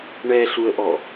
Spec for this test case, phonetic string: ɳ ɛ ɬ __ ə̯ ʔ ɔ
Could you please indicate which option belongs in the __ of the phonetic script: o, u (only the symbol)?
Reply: u